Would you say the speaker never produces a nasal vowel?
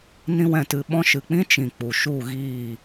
no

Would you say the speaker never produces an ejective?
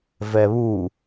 yes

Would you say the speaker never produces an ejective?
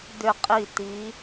no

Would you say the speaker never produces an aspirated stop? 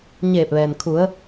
no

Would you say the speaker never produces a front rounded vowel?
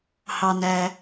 yes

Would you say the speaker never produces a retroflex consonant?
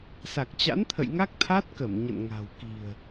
yes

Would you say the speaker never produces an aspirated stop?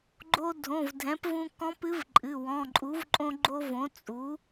yes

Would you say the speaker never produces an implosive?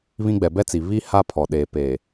no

